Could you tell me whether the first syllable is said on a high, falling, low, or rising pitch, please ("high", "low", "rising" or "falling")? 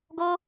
high